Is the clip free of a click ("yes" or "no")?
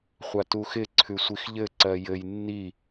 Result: no